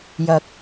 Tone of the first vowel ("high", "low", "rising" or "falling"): rising